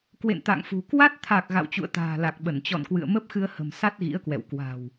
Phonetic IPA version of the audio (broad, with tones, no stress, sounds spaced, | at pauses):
k w ḛ˧˨ n t̪ a̰˧˨ ŋ f ṳ˨˩ k w a˦˥ t̚ t̪ʰ a˨˩ k̚ ɣ a̰˧˨ w t͡ɕ ṵ˧˨ ə̯ t̪ a̤ː˨˩ l a˨˩ k̚ ɓ ə˧˩ n t͡ɕ ɔ̰˧˨ n k w ɨ̰˧˨ ə̯ m ə˦˥ p̚ x ɨ˧ ə̯ h ə̤˨˩ m s a˦˥ t̚ ɣ ḭ˧˥ ə̯ k w ɛ̰˧˨ w k w a̤˨˩ w